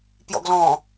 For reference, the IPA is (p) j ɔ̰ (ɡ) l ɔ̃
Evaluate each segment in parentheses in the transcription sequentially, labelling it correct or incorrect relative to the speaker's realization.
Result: correct, correct

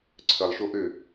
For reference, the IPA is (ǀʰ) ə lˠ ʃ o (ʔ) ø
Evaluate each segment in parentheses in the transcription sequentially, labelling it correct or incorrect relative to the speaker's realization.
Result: correct, correct

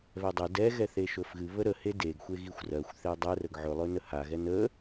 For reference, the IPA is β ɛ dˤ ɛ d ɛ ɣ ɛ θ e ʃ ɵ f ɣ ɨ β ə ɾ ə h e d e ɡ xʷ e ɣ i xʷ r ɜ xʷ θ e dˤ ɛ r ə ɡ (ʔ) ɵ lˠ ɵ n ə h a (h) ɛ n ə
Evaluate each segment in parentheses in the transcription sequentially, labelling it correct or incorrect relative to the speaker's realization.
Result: incorrect: ʕ, incorrect: ɣ

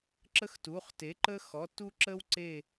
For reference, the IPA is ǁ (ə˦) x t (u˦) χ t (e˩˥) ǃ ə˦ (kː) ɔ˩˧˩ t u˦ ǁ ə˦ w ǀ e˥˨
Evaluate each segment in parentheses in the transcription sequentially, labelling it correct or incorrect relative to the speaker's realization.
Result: correct, incorrect: u˩˧˩, correct, incorrect: x

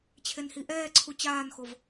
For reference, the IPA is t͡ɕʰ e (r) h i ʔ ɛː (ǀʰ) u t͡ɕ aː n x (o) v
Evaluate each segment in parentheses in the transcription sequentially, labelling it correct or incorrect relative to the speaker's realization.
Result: incorrect: n, correct, correct

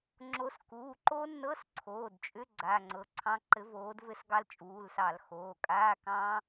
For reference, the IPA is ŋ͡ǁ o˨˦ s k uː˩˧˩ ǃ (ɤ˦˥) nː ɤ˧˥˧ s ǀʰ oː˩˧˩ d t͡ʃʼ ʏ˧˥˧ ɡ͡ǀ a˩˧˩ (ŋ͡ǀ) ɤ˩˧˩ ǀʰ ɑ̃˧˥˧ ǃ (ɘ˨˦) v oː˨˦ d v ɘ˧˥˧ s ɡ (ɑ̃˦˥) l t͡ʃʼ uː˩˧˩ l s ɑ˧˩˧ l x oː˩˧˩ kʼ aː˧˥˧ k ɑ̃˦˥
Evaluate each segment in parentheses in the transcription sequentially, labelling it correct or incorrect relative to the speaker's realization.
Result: incorrect: o˦˥, correct, correct, incorrect: ɑ˦˥

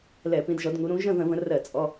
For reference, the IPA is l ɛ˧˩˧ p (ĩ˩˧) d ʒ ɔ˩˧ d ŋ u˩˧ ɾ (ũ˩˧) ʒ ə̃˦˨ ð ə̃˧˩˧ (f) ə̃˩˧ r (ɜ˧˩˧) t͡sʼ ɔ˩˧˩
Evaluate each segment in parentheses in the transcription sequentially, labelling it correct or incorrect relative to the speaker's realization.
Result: correct, correct, incorrect: v, correct

